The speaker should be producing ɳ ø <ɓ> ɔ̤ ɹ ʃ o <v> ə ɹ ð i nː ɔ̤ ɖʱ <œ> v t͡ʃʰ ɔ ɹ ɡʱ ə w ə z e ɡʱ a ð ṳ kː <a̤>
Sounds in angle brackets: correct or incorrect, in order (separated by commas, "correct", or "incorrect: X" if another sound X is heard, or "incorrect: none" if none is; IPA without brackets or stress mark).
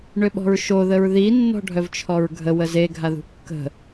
correct, incorrect: ð, correct, incorrect: ə̤